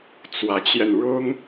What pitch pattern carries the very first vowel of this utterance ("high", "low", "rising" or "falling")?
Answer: rising